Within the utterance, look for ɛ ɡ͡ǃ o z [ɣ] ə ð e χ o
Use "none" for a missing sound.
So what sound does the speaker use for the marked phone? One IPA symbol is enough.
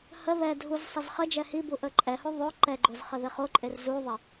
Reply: χ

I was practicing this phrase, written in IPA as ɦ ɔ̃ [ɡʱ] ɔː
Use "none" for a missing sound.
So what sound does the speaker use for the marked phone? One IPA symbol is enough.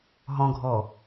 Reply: ɡʱ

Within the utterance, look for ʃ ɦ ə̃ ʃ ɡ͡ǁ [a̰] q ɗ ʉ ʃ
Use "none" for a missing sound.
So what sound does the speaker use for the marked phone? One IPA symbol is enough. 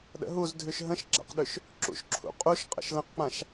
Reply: a̰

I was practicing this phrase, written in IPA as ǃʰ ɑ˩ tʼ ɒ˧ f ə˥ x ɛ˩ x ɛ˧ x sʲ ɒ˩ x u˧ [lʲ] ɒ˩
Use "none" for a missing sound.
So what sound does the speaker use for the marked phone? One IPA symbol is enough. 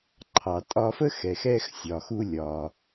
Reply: lʲ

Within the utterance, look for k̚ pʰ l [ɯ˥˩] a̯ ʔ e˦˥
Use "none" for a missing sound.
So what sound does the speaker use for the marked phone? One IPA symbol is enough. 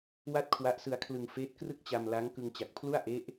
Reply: u˥˩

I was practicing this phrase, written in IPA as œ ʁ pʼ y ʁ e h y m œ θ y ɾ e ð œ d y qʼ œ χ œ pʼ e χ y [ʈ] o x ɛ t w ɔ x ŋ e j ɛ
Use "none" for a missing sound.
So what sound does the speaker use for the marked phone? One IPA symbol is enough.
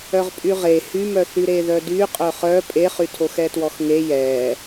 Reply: tʰ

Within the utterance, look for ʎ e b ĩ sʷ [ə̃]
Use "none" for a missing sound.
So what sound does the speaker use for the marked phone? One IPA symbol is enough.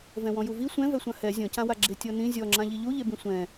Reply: ɛ̃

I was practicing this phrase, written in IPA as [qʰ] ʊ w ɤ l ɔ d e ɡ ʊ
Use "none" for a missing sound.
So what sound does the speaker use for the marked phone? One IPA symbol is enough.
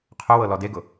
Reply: qʰ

